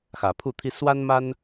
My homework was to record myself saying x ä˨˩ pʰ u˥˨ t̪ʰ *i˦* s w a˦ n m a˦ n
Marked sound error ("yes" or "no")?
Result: no